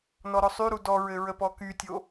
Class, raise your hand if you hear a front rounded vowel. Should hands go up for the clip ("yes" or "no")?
yes